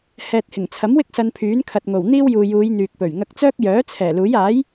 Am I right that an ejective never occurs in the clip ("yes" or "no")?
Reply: yes